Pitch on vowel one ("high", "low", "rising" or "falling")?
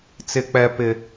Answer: high